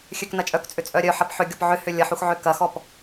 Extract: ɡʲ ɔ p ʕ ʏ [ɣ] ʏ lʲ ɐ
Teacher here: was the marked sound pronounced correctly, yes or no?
no